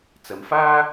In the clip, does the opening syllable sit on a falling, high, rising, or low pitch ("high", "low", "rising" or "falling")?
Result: low